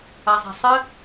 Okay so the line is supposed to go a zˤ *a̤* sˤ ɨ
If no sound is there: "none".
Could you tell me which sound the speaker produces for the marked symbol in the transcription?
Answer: a̤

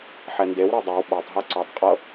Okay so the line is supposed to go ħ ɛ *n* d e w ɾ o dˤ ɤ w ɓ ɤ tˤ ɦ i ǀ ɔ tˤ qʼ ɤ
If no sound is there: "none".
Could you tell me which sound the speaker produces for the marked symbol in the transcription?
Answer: n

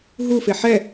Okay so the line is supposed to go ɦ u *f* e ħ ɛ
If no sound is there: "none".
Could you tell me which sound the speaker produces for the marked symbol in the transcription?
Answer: f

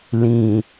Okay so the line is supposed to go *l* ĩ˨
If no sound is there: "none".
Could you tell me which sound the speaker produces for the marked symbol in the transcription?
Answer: l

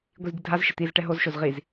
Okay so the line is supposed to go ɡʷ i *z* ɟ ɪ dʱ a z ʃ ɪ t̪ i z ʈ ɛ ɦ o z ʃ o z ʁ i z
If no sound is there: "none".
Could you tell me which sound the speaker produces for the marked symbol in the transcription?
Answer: z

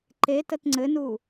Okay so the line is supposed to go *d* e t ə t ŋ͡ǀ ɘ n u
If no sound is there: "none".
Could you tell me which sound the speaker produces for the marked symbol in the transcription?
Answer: ǃ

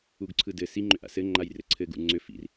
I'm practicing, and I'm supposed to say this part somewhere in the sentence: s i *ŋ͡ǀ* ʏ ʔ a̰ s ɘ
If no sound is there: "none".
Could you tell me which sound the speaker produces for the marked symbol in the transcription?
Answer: ŋ͡ǃ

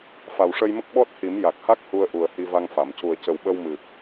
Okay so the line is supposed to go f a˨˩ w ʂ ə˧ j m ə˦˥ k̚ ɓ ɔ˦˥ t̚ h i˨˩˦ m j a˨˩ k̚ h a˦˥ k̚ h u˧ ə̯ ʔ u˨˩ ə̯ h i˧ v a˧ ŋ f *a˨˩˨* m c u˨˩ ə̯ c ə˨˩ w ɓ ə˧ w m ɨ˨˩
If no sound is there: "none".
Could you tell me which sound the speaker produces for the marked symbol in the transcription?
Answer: a˨˩˨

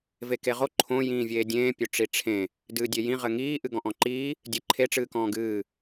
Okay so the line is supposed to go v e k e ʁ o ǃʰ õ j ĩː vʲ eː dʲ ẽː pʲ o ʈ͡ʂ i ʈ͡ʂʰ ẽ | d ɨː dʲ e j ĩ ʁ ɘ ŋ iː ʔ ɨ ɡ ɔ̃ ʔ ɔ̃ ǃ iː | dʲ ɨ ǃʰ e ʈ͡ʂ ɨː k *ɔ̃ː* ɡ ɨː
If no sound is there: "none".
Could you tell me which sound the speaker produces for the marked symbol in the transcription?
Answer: ɔ̃ː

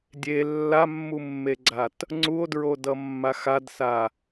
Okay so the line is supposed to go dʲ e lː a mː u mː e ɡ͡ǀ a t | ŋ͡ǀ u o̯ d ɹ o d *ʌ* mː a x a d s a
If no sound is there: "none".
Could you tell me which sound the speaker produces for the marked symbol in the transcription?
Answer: ʌ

